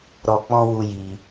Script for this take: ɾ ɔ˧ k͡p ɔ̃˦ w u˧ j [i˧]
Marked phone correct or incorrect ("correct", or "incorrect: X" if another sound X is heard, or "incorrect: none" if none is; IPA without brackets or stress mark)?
correct